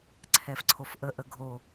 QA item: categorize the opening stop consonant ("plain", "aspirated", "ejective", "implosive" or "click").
click